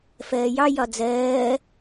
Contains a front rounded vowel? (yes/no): no